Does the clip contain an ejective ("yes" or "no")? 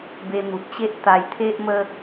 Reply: no